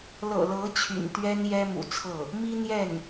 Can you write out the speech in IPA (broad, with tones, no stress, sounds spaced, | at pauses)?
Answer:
l ɤ̰˨˩ l ɤ˧˥ t͡ɕʰ y̰˨˩ n t̪ ɥ ɛ˥ n j ɛ˥ m ṵ˨˩ t͡sʰ ɤ˥˩ | m i˥ n̪ j ɛ˥˩ n